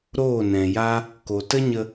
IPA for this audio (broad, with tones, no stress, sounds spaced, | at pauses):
ɾ oː˦˨ n ɛ̃˨ j a˦ | k o˨ t ə˦ ɲ ə˧